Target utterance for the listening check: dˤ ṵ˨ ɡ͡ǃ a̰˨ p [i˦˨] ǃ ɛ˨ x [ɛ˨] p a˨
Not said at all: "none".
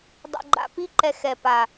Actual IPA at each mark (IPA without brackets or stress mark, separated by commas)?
i˧, ɛ˨